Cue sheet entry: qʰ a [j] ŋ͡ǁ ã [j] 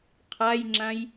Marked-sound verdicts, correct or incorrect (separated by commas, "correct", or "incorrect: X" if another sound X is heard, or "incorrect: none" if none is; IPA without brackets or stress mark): correct, correct